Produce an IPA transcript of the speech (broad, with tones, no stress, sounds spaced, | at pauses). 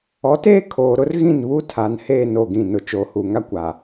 ɔ˨˦ t eː˦ kʰ oː˨ ɾ ʊ˦ r ɣ ĩ˦˨ n β u˦ tʰ a˨ n h eː˦˨ n o˦˨ ɡ ĩ˦˨ n ʊ˦ t͡ʃ oː˨ h u˨ ŋ a˦ kʷ a˨